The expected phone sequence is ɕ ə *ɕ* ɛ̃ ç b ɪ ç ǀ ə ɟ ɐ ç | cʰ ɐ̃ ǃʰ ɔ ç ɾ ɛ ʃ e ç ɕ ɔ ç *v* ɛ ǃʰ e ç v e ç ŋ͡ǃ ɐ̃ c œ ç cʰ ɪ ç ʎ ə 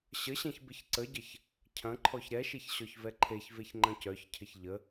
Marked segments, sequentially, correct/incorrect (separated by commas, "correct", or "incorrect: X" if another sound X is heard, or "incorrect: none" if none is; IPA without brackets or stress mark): correct, correct